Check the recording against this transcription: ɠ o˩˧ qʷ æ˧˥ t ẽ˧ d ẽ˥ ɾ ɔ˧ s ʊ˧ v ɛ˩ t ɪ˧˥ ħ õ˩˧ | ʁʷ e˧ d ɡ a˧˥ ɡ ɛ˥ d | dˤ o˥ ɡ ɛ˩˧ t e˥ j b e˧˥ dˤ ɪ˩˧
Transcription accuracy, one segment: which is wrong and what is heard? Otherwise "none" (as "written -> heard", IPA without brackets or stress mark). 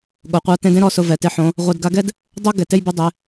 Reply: æ˧˥ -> a˧˥